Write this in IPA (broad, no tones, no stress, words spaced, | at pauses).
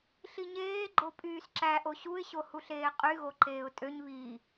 ɬiɲeː ɡ͡ǃopʼyːsǁæ ʔoɕuɪ̯ɕo huɬeːqʼy ɣoǃeːʊ̯tʼøɲ βi